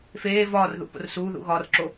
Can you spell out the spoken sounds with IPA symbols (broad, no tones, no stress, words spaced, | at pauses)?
feː vɒːrðṵ po̰rsuːðṵ ɣɒrǁo